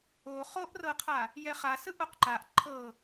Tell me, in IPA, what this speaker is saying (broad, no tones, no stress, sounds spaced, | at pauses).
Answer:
o χ o ʔ r ɤ qʰ a | j ɛ χ a s ɯ ʔ o q ǃ a ʔ ǃʰ ɤ